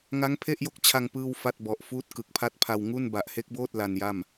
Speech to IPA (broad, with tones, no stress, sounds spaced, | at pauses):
ŋ a˦˥ ŋ pʰ e˥˩ ʔ j o˥˩ k̚ t͡ɕʰ a˧ ŋ p ɯː˥˩ w f a˥˩ t̚ b ɔ˨˩ ʔ f uː˦˥ t̚ k ɯ˨˩ k̚ pʰ a˦˥ t̚ pʰ a˧ w ŋ u˥˩ n b a˨˩ ʔ h e˦˥ k̚ b oː˥˩ t̚ l a˧ n j a˥˩ m